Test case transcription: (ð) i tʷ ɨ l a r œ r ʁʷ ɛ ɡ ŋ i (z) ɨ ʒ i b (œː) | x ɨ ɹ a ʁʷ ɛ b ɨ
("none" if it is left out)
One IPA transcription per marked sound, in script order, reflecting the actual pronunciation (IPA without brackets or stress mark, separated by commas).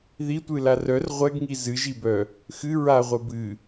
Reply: ð, z, œ